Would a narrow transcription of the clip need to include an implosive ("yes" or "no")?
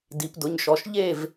no